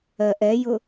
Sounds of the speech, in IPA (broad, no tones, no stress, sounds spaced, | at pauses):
ɜ ʔ ɛ j ʊ